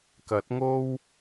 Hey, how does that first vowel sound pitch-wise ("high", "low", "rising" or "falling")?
rising